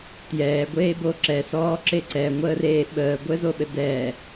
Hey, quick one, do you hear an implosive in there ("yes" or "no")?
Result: yes